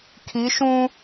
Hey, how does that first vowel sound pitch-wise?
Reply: rising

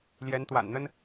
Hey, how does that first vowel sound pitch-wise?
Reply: rising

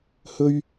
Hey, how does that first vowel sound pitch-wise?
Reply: high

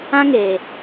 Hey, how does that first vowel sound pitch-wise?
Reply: high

